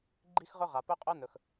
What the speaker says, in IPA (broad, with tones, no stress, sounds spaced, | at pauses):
ɡ͡ǃ i˥ x ʁ ɵ˥ ʁ a˩ p ɵ˥ qʼ œ˥ n ɵ˩ x